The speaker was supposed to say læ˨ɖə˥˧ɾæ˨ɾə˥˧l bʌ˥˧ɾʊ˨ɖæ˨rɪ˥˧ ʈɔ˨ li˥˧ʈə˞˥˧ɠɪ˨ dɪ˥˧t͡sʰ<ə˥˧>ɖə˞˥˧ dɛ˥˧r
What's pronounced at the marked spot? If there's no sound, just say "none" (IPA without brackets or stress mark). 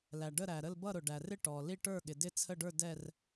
ə˥˧